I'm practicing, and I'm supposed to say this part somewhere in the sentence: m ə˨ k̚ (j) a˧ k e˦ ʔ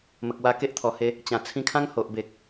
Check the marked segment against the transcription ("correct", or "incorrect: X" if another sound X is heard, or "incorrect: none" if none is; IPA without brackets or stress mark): incorrect: w